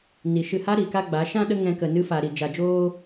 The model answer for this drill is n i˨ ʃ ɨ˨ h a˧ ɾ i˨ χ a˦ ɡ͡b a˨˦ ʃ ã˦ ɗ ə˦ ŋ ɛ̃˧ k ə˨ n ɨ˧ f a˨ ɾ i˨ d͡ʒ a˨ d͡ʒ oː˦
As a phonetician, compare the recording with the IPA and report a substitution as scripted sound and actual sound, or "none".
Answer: χ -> k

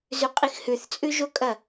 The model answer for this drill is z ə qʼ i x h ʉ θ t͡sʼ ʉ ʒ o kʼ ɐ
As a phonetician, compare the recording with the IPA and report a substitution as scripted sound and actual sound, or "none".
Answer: ə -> ʉ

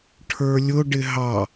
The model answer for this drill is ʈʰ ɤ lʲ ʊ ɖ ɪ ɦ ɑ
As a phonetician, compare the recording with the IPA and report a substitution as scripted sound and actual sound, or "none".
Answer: ɤ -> ə˞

